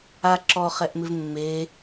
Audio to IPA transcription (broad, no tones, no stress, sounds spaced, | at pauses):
a ǁ ɔ χ ɛ ʔ m ɪ v mː e